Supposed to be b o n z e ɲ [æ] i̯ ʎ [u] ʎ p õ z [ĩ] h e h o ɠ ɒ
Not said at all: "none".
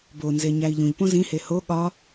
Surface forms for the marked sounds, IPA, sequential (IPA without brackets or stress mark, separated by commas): æ, ũ, ĩ